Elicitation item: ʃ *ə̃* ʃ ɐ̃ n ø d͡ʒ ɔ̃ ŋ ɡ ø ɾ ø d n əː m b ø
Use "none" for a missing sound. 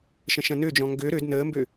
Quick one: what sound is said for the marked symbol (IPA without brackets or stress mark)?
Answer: ə̃